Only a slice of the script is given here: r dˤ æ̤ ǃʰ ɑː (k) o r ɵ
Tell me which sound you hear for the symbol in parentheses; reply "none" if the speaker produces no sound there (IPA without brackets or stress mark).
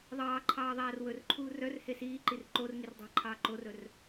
ǃ